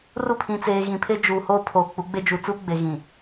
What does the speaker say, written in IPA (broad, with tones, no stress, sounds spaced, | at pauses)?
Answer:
r u˦˨ pʰ ĩ˨ t͡s eː˨ ɣ ĩ˨ pʰ e˦ d͡ʒ uː˨ h oː˦ pʰ oː˨ k͡p u˨˦ ɡ͡b e˦ d͡ʒ u˨ t͡s u˦ ɡ͡b e˨ ɣ ĩ˨